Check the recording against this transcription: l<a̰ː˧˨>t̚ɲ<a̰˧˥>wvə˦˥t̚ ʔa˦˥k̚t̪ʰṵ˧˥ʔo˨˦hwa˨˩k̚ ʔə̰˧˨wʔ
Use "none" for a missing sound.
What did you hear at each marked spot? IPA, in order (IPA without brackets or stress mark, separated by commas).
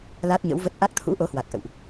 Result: aː˦˥, ə̰˧˥